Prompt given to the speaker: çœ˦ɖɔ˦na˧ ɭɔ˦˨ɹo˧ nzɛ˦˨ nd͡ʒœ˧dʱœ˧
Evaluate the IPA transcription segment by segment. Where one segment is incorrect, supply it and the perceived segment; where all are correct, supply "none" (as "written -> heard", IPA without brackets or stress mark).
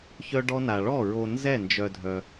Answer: none